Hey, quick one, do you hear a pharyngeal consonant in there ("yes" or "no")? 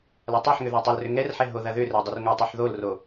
yes